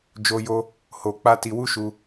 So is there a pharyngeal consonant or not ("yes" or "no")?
no